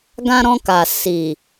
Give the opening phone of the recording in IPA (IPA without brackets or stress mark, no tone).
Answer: ɡ